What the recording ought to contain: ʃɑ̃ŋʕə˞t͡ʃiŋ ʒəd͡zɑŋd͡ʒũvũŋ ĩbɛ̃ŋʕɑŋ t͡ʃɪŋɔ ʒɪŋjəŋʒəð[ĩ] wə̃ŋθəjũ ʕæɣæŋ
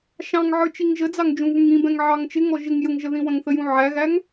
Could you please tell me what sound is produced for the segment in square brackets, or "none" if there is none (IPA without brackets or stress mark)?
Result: ĩ